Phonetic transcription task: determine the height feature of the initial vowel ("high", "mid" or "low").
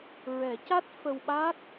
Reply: mid